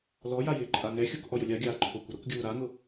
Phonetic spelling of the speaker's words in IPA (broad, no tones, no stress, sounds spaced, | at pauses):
l ɔ j a j ɪː ǃʼ a ŋ ɛ xʲ o k ʔ ɔ j ʊ lʲ a ɡʲ aː ǃʰ o kʷ ɪ ɾ ʊ k ɡʲ uː ɾ a ŋ ʊ